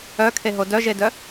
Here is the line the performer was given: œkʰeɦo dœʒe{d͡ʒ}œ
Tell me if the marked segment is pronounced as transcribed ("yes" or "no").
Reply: no